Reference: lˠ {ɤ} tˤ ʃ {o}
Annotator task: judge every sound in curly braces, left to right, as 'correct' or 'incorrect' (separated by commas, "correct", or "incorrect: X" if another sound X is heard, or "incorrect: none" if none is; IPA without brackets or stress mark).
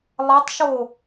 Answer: correct, correct